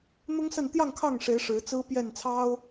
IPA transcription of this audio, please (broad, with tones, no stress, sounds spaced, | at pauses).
n̪ ʊ˦ ŋ s ə˥˨ n t̪ j ɑ˥˨ ŋ kʰ ɑ˥˨ ŋ ʂ e˨˦ ɪ̯ ʂ ɻ̩˨˦ t͡s ɹ̩˦ p j ɛ˥˨ n t͡sʰ ɑ˦ ʊ̯